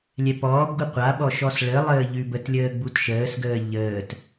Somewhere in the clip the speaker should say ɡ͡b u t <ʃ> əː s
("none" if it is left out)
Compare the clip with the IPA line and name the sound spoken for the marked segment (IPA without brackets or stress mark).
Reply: ʃ